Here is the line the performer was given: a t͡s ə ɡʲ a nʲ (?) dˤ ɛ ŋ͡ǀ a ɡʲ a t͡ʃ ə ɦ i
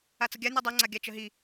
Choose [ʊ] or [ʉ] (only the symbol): ʉ